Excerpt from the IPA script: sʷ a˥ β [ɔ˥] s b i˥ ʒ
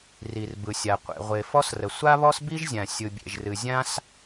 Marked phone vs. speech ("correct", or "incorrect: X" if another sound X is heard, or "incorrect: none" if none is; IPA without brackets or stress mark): correct